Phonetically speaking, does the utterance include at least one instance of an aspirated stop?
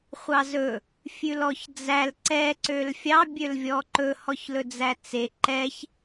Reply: no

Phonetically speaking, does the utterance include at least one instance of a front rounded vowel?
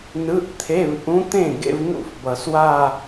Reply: no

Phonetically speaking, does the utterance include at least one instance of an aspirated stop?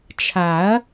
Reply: yes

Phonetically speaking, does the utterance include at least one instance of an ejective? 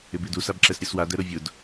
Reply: no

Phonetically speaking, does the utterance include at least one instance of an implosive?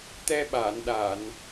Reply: yes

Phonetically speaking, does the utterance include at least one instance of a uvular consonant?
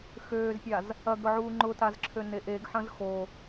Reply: no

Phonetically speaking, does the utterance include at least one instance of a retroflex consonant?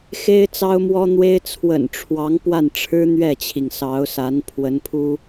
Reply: yes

